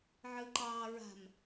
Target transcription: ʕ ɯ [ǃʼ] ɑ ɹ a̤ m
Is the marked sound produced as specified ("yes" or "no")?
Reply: no